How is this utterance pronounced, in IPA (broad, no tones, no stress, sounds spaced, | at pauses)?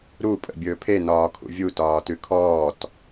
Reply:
ɾ u pʼ ə̰ bʲ ɵː pʰ e n ɒː kʰ ṵ vʲ u t ɒː t ʉ kʰ ɔː t